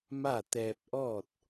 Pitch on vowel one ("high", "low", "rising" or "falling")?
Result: falling